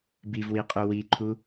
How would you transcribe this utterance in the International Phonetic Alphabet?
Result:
b i v w i qʼ u w i ǃʰ u

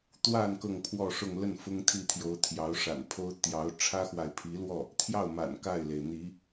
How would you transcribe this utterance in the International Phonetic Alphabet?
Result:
t̪ w a˥˧ n k ɤ˥˧ ŋ pʰ w ɔ˥˧ ʂ ʊ˥˧ ŋ l ə˥˩ n f ʊ˥ ŋ t̪ʰ i˥˩ t̪ʰ j o˧˥ ʊ̯ t̪ʰ j ɑ˧˥ ʊ̯ ʂ a̰˨˩ n pʰ o˥ ʊ̯ t̪ j ɑ˧˥ ʊ̯ ʈ͡ʂʰ ä˥ x w a˨ ɪ̯ pʰ i˧˥ l w ɔ˥˩ | t̪ʰ j ɑ˥˩ ʊ̯ m a̰˨˩ n k a˥˩ ɪ̯ l e˩ ɪ̯ n̪ i˧˥

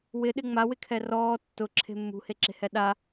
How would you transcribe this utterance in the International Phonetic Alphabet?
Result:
w ɪ ɗ ɪ ŋ͡m a w ɪ kʰ ɛ r ɔː tː ʊ ǁʰ e̤ mː ṳ h e ǁ e̤ h ɛ ɗ a

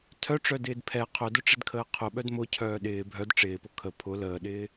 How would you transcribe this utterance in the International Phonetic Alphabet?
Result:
tʰ œ ʈ͡ʂ œ d ɪː d pʰ ɛ qʰ œ d ʊ ʈ͡ʂ ɪ d kʰ əː qʰ ʊ ɓ œ d m ʊ cʰ œː ɗ ɪː bʱ œ d ʈ͡ʂ ɪː p ʊ kʰ ə pʰ ʊ l əː ɗ ɪː

